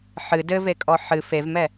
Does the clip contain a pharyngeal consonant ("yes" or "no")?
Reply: yes